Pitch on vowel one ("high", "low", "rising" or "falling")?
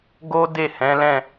high